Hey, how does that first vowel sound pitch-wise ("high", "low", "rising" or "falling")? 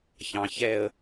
low